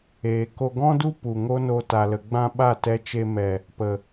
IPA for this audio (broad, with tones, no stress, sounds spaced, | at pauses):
eː˨ k o˧ ɡ ɔ̃˦ d u˦ p u˨ ŋ o˦ n o˧ t a˨ l ə˨ ɡ͡b ã˧ ɓ a˦˨ t ɛ˧ t͡ʃ e˧ m ɛ˨ | p ə˨